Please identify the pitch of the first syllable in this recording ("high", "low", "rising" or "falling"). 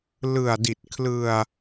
low